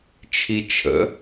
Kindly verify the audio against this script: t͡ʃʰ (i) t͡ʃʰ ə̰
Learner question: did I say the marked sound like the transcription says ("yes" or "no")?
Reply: yes